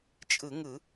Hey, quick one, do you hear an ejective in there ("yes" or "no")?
yes